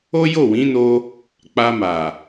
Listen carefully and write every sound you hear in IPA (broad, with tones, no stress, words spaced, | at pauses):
o˦jo˦˨wĩ˨˦no˧ | k͡pa˧ma˨